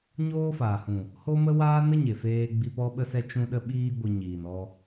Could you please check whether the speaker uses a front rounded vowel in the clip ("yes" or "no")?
no